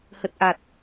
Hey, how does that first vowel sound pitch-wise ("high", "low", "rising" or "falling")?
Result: low